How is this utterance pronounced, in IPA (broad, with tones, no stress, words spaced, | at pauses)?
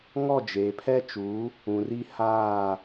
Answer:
ŋɔ˦˨d͡ʒeː˨pʰɛ˦ t͡ʃu˨˦ | ũ˨r i˦ haː˦˨